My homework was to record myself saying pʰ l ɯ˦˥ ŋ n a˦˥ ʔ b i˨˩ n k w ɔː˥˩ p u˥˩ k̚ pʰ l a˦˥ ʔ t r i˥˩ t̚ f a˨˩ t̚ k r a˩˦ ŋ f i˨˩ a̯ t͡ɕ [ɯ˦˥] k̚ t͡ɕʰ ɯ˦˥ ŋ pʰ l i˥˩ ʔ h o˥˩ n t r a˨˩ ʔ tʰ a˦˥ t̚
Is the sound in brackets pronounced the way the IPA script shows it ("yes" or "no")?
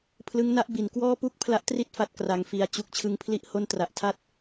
no